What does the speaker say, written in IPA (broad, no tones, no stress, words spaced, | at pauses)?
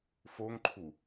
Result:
foŋǃʰu